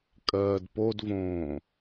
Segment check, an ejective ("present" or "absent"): present